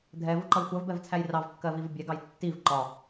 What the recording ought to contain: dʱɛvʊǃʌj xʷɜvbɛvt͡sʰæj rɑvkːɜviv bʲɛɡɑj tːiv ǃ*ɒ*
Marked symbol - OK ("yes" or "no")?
yes